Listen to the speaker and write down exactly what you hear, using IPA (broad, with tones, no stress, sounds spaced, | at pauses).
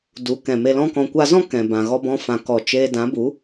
d u˨˦ k ɛ̃˨ m e˧ l ɔ̃˧ k ɔ̃˨ kʷ a˧ z ɔ̃˦ k ɛ̃˨ b ã˨ ɣ ɔ˧ b ɔ̃˧ f ã˨ k ɔ˨ t͡ʃ eː˧ d ã˨˦ b u˨˦